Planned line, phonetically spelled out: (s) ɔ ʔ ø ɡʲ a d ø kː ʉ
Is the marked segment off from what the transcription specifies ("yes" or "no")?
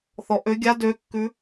yes